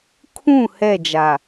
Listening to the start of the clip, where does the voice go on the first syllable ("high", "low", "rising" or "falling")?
falling